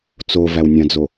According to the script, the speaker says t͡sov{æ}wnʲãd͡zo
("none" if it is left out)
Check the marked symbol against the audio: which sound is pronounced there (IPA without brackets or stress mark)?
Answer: æ